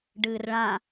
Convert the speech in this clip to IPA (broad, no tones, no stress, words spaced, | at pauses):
ɖɨːrɭã